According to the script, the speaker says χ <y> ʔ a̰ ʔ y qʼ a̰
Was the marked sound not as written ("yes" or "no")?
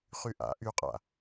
no